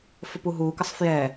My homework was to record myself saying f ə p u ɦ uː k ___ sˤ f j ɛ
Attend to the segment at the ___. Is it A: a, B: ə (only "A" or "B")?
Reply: B